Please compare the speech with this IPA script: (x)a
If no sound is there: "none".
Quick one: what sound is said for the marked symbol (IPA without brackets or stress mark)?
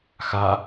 x